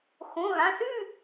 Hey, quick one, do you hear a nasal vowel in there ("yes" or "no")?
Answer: yes